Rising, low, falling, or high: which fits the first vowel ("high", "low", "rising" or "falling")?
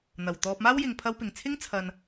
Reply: low